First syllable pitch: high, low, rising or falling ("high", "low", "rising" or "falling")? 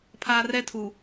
high